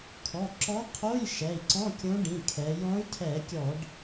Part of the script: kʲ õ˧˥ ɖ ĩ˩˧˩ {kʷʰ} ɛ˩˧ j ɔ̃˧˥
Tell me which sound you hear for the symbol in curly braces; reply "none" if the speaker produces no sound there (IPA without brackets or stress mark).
kʰ